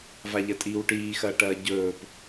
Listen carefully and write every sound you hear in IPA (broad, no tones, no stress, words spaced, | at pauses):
vaʎɐtʼiːwʈiː xɐːʈɐːɟɵːp